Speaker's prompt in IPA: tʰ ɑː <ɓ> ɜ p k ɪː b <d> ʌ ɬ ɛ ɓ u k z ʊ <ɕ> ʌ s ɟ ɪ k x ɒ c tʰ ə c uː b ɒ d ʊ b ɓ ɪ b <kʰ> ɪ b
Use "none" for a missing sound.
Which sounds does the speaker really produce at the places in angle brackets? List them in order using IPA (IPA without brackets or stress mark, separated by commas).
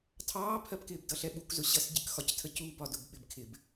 pʰ, d, ɕ, kʰ